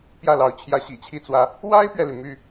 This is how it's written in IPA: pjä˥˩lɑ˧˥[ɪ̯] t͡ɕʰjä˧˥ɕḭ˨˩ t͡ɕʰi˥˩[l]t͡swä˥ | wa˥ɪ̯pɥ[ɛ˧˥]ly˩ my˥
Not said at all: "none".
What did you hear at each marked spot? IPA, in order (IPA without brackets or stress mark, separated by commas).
ʊ̯, none, ɛ˨